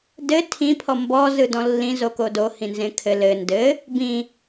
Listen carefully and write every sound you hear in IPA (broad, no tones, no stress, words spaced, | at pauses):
dɘ tʰĩ pʰɔmbɔ zɯdɔ̃lːĩ zokodo hĩnzẽkʰɘ lɘ ndɘ | bĩ